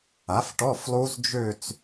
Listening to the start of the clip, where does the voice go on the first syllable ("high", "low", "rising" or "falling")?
rising